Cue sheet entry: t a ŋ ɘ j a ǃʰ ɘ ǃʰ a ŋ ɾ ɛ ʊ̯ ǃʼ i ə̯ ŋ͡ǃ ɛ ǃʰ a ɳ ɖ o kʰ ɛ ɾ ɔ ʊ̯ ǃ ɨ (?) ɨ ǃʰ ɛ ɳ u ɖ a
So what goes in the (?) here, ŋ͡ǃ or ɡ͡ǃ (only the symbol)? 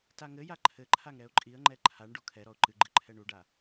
ɡ͡ǃ